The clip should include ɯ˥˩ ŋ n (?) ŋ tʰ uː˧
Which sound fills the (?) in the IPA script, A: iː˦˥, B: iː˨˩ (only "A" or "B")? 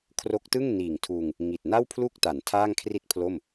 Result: B